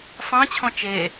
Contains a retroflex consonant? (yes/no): no